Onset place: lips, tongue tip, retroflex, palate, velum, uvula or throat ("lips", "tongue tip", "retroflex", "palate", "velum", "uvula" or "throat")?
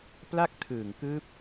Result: lips